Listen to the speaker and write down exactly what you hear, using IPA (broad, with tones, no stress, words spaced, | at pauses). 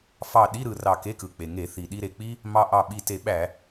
fɑ˧˩ɗi˧˥˧ ɾɯ˩ rɑ˧˩ke˧˥˧kɯ˩ k͡pe˩ŋe˧˩˧ θi˩ɗi˧ɾe˩k͡pi˥ | mɑ˧ʔɑ˧˩ ɓi˧˩te˧˩˧ ɓæ˧˩˧